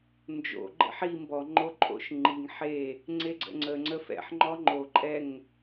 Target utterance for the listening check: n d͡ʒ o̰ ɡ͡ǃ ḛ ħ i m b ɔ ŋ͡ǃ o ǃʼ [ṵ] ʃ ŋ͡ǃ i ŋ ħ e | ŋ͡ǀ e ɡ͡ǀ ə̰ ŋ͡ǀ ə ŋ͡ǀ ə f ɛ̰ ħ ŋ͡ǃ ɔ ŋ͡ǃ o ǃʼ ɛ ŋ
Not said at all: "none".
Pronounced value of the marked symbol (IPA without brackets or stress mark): o̰